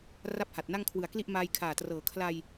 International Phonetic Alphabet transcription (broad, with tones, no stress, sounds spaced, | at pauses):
r a˥˩ p̚ h a˨˩ t̚ n a˥˩ ŋ kʰ w ɯ˨˩ a̯ k l i˥˩ ʔ m aː˧ j kʰ aː˨˩ t r ɤː˨˩ kʰ l a˧ j